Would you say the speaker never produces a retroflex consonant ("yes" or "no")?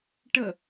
no